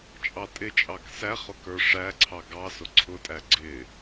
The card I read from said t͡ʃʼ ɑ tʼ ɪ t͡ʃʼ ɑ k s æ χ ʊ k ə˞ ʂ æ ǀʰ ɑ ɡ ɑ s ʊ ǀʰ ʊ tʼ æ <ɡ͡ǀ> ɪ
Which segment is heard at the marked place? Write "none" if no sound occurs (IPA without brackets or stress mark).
ɡ͡ǀ